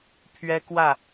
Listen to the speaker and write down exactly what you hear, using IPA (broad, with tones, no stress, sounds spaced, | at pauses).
pʰ ɥ ɛ˥ k w ä˥˩